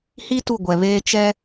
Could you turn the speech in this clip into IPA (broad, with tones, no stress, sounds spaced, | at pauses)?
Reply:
h i˦ t u˦˨ ɡʷ ɛ˨ β eː˦ t͡ʃ ɛ˦